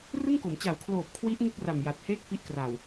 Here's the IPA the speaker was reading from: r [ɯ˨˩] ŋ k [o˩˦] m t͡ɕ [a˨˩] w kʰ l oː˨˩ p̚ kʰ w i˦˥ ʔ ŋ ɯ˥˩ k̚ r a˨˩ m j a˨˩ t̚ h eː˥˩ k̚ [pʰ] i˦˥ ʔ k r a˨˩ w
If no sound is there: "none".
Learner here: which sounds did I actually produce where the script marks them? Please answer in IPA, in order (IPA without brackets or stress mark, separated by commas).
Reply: ɯ˥˩, o˩˦, a˨˩, f